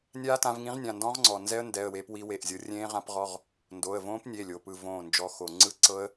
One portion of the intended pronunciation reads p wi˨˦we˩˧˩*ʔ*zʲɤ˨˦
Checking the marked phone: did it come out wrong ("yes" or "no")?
no